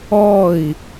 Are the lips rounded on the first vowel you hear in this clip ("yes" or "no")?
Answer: yes